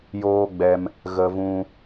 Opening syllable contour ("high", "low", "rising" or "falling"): high